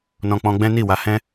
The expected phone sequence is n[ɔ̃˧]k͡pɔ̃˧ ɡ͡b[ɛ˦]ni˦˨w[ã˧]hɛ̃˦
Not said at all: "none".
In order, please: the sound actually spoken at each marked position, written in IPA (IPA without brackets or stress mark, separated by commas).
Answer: ɔ̃˧, ɛ̃˦, a˧